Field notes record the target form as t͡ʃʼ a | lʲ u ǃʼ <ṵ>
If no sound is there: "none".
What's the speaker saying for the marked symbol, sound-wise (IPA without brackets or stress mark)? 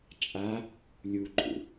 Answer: ṵ